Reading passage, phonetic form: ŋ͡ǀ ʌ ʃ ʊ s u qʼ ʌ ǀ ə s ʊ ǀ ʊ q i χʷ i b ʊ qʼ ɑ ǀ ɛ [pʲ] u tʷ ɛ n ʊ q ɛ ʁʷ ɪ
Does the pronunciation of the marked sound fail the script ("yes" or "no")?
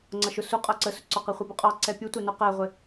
no